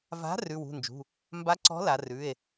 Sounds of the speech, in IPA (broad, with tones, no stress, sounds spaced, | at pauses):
v a̤˨˥ r ʉ˩˧˩ w ṳ˩˧˩ n d͡ʒ ṳ˩˧˩ | m b a˨˥ ǀ ɔ̤˨˥ l a˩˧ r ʉ˩˧˩ e̯